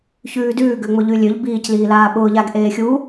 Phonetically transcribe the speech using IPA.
çʉːdʉːɡøŋ͡mʊ ʎʉlʲøʎ biːcliː laːɓʊːʎaɡ ʔeːxʲu

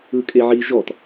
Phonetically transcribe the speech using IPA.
ɯkʼeʕi ʒɔt

